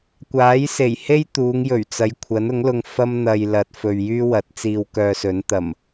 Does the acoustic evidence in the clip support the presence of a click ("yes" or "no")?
no